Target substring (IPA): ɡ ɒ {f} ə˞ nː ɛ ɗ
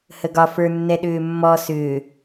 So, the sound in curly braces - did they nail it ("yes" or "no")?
yes